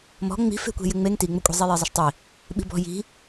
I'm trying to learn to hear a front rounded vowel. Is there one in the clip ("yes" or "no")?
no